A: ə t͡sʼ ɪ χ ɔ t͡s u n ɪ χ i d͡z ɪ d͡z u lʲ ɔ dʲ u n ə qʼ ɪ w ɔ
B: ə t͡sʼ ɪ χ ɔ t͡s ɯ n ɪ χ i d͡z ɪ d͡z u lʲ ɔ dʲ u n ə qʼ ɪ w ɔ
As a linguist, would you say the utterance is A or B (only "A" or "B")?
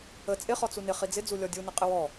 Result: A